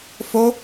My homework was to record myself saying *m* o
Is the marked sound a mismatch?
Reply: yes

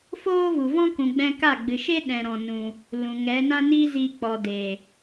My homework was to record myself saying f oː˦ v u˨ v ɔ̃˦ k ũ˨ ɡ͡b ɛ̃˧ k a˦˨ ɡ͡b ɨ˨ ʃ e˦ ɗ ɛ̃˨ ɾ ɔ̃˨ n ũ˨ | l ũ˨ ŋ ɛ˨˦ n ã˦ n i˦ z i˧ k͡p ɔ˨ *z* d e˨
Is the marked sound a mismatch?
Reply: yes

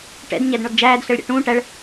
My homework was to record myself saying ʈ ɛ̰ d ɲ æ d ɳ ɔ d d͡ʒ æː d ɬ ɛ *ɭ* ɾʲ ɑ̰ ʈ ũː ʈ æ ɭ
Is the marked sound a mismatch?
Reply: no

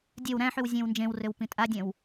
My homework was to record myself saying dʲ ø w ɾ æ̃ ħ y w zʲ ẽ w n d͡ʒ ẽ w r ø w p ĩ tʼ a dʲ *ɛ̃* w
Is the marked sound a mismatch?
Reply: no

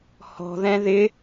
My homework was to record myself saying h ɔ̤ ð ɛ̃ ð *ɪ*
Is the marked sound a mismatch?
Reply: no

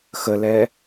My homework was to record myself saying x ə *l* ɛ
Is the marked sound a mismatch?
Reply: no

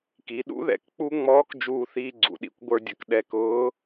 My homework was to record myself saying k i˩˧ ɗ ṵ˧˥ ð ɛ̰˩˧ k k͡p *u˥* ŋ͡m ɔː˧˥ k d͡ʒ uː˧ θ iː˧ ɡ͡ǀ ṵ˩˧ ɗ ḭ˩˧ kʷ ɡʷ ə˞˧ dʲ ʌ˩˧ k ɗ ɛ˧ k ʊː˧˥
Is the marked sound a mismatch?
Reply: no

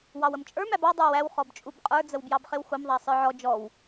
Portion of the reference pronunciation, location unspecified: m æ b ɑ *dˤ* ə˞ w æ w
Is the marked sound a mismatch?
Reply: no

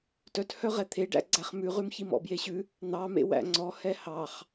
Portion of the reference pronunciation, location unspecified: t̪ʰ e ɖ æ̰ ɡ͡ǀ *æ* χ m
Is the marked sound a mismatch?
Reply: no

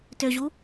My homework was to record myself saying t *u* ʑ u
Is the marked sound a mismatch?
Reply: yes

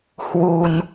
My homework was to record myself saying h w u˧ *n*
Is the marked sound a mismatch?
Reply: no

